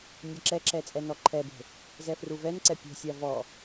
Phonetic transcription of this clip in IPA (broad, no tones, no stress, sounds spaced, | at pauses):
nʲ ɛ ǁ ɛ ǁ ɛ t͡sʼ ɛ n ɔ ǃʰ ɛ b e̤ | z ɛ f r u v ɛ n ǀ ɛ pʲ ɛ̤ sʲ a v ɔ